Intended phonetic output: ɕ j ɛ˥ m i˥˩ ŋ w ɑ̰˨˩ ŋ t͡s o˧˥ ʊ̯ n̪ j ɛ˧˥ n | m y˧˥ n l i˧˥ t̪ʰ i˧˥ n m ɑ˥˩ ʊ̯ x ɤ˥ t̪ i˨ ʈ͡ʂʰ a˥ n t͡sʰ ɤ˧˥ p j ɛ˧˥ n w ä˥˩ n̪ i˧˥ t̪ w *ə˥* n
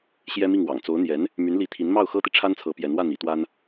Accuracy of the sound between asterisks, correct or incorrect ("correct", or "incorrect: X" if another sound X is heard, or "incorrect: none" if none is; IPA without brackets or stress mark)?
incorrect: a˥